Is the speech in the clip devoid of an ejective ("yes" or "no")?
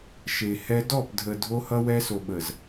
yes